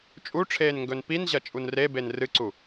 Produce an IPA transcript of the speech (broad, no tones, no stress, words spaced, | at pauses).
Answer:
t͡ʃʼuʈ͡ʂʰeːnŋɡɵn pinʑɐt͡ʃʼun reben rɨǀu